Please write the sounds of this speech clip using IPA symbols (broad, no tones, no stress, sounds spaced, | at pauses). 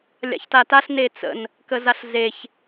lʲ a̰ ç t a t a ɬ n e t͡s ə̰ n | k ə z a ɬ z e ç